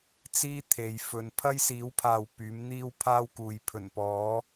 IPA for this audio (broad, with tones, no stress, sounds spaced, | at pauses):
t͡s iː˥ t̪ʰ e˨˧ j f ɵ˧ n pʰ ɐ˥ j s iː˨˥ w pʰ aː˨ w p yː˨˥ m n̪ iː˥ w pʰ aː˥ w k uː˨˧ j pʰ ɵ˨˩ n p ɔː˨˥